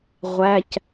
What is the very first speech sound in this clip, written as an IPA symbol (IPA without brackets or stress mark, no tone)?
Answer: ʁʷ